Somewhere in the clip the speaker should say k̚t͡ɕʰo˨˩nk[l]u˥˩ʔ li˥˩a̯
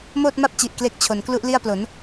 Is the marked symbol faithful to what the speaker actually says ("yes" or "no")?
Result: yes